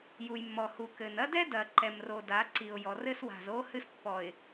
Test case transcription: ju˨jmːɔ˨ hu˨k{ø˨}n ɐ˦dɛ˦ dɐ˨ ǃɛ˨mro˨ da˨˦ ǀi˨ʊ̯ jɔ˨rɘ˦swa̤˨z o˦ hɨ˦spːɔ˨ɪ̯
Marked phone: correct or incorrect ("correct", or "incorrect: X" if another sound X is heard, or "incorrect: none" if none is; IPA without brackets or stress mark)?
incorrect: ɘ˨